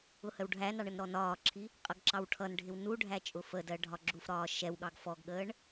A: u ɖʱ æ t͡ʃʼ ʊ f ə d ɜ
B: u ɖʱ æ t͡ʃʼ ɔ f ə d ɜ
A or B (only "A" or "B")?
A